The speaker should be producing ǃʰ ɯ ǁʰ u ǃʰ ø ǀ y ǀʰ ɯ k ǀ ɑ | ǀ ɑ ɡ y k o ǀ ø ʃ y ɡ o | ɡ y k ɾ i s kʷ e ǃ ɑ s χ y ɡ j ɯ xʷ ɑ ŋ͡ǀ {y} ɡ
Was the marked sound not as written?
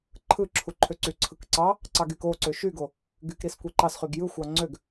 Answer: yes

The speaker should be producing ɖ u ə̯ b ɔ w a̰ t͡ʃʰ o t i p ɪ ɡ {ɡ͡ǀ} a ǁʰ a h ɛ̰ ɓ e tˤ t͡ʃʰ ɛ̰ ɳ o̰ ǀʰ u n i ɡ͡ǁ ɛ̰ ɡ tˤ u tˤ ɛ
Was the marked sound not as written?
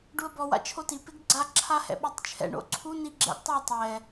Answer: no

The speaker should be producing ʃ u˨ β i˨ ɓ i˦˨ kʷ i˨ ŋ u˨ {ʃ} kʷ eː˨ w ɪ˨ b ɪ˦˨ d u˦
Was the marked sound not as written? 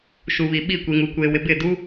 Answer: yes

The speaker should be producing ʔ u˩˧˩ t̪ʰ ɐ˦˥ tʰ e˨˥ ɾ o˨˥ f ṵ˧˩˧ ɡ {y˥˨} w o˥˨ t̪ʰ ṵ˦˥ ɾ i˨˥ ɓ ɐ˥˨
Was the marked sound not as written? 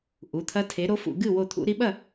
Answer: yes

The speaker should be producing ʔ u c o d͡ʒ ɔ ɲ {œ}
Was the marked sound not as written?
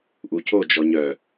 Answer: no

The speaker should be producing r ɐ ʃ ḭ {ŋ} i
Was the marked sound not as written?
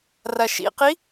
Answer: yes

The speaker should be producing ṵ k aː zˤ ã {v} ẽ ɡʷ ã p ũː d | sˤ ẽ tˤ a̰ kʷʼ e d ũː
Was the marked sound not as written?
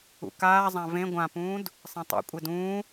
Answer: no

